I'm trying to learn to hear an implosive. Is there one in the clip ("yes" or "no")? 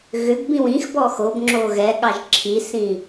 yes